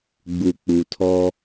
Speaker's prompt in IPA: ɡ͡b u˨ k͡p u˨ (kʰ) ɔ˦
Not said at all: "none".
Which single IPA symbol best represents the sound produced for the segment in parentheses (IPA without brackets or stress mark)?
tʰ